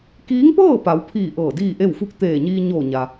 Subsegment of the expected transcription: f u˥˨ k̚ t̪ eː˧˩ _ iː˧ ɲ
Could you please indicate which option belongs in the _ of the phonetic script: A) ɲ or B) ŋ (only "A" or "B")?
A